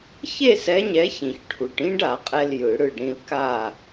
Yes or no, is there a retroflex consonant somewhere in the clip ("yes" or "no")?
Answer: yes